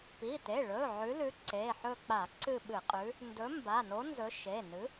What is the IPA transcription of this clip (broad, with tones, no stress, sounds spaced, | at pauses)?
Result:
p i˩˧˩ t e˩˧˩ ɭ ɵ˩˧˩ ʕ ʉ˨˥ l ʉ˨˥ ǀ e˩˧˩ ħ ɵ˦˨ k͡p a˧˩˧ ǀ ɨ˦˨ ɓ ɨ˧˩˧ qʼ ʉ˨˥ | n d ɵ˨˥ m b a˩˧˩ n o˨˥ n z ɵ˨˥ ʃ e˩˧˩ n ɨ˨˥